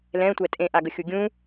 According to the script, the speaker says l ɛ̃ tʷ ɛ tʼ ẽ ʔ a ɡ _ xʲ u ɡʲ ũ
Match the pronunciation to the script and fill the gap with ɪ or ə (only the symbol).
ə